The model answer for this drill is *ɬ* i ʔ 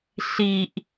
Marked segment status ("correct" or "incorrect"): correct